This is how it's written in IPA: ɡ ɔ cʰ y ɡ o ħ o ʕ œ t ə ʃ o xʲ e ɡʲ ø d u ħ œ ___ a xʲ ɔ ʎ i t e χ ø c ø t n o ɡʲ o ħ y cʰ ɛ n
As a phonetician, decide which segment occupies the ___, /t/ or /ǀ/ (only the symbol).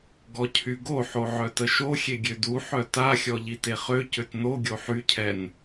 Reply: t